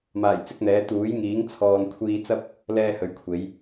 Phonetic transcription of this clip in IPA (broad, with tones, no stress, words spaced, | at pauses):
maː˨˩jt͡sɪ˥k̚n̪ɛː˨˥ t̪uː˨˥jŋiː˨˥ŋ t͡sʰɔː˨nkʷʰiː˧t͡sɐ˥p̚ | lɛː˥hɵ˨ɥkʷʰe˨˥j